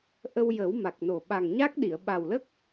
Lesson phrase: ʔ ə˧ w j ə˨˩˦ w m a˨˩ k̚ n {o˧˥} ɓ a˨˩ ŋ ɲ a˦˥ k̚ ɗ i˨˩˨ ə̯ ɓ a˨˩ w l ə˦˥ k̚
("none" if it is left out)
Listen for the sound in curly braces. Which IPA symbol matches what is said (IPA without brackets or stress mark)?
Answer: o˨˩